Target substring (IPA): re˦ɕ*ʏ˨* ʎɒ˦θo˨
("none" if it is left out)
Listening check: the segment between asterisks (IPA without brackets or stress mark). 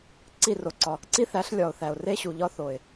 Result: u˨